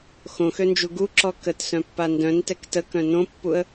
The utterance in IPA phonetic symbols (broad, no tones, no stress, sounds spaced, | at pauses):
x õ x ø n d͡ʒ u ɡ u ǁ ɔ k ə t s œ̃ pː a n d œ̃ n t ɛ k t ə k œ̃ n õ pː u ə̯